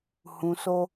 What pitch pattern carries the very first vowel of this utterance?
low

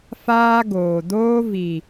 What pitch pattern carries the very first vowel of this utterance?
high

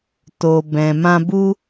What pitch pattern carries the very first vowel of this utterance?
low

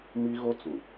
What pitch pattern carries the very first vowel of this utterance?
high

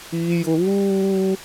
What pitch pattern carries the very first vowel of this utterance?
high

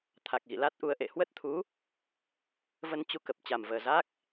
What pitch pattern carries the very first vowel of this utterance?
low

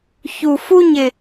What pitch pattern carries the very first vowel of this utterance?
low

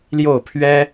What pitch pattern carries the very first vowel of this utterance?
falling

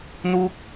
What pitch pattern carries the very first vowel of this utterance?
falling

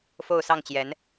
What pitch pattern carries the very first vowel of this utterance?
falling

